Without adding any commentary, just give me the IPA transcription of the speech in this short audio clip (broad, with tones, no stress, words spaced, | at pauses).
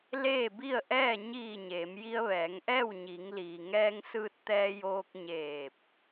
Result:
leː˥˨bi˥˨ə̯ʔɛː˥˨ ɲiː˧˩ ɲeː˩˧m ji˧ə̯ʋɛː˩˧ŋʔɛː˥˨w ɲi˩˧ŋliː˩ ŋɛː˧ŋsɯː˧t̚ t̪ɛː˧joː˧k̚ɲeː˧˩p̚